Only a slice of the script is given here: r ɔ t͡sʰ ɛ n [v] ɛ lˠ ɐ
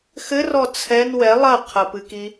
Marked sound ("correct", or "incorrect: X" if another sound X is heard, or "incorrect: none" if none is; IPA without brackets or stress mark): incorrect: w